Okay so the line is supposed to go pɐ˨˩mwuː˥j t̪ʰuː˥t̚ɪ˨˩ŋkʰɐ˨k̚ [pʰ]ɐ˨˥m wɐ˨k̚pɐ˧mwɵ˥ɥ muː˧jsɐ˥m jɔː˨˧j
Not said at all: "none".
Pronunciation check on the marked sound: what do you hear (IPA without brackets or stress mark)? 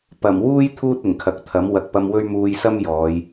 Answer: t̪ʰ